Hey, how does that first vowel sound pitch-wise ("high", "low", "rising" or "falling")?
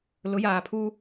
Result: rising